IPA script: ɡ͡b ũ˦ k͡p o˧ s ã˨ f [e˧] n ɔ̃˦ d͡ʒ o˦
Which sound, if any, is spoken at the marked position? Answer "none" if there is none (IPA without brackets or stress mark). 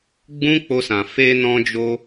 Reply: e˧